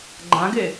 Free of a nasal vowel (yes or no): no